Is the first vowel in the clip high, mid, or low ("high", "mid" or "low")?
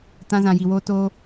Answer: low